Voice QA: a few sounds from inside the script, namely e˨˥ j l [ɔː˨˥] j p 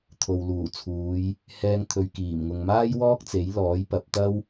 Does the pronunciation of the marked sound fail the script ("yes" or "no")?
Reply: no